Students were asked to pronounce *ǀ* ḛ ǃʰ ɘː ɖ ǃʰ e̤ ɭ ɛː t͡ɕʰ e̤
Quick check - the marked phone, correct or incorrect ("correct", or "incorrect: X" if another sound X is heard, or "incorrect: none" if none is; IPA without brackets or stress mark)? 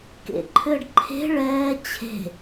incorrect: k